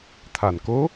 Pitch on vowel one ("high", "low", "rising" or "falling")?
low